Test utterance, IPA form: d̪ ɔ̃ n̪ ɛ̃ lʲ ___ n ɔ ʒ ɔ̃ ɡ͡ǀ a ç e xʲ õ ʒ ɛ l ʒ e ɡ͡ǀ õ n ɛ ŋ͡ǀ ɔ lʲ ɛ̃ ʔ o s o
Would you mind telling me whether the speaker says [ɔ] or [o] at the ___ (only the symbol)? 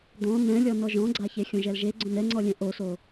ɔ